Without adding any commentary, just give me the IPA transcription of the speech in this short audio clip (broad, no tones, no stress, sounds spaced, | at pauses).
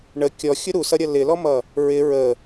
ɳ ə kʲ ɔ xʲ ʊ ɾ u s ʌ ɾʲ ʌ l ɪ l ɔ m ʌ | ɹ ɪ ɹ ə